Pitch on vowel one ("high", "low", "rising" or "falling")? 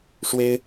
high